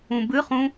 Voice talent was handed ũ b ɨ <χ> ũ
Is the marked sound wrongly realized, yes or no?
no